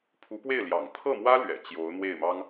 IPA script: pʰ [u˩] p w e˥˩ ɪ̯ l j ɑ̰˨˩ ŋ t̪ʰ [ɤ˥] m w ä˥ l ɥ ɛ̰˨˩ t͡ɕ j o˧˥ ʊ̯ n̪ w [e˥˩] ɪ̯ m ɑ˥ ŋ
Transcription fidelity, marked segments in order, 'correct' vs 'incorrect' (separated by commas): incorrect, incorrect, correct